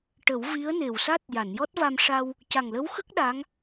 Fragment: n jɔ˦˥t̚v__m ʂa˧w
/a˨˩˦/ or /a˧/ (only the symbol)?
a˧